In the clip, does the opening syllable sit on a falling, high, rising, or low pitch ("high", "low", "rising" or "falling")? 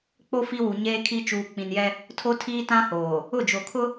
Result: high